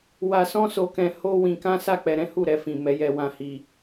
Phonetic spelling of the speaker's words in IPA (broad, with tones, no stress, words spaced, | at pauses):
wa˧ sɔ̃˦so˧ kɛ̃˧ho˦ wĩ˧kã˦sa˦˨k͡pɛ˧ ɾɛ̃˦hu˦˨ɾɛ˧fĩ˨ mɛ˨˦jɛ˧wã˧hi˧